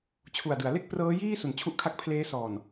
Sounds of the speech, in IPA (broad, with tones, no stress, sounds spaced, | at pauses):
t͡ɕʰ u˨˩ a̯ d ɯ˩˦ a̯ l e˥˩ k̚ p r ɤː˦˥ j iː˥˩ s u˩˦ n t͡ɕʰ u˥˩ ʔ kʰ a˥˩ k̚ pʰ l eː˦˥ s ɔː˨˩ n